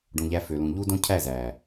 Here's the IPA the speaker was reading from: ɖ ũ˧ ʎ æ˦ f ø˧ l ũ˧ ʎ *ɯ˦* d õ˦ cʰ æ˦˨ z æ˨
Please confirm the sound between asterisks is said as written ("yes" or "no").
no